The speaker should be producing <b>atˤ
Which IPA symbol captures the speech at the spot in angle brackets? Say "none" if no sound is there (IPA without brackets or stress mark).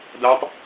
d